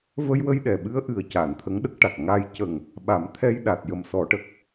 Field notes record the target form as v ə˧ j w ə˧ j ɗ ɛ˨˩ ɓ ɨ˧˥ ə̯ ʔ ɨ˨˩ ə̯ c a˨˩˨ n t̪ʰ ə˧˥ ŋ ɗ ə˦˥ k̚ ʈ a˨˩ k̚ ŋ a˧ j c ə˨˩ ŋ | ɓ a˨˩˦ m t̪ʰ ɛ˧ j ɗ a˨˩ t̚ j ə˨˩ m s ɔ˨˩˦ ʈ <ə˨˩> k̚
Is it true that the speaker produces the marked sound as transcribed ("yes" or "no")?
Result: yes